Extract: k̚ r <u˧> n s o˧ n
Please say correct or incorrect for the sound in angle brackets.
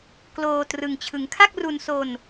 correct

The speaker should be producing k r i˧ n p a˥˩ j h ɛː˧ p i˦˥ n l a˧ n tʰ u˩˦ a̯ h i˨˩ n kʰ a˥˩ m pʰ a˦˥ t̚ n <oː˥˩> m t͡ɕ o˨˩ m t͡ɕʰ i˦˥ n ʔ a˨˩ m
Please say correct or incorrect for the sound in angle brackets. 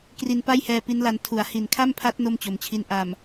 incorrect: o˥˩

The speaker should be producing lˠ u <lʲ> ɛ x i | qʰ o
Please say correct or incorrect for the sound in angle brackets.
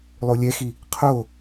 correct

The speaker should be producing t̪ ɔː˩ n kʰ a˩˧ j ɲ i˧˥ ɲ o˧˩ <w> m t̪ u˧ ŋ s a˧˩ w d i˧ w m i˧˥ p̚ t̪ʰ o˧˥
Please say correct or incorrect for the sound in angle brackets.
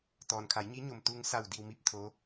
incorrect: none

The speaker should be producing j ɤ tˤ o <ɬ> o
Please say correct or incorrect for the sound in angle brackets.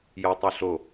correct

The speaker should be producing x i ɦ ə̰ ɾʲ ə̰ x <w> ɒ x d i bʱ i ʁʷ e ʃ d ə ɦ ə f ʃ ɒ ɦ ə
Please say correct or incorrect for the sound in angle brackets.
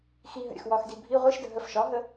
correct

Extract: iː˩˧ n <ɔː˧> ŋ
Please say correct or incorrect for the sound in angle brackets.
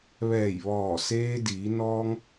correct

